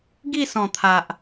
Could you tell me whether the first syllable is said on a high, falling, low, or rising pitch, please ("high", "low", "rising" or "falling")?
falling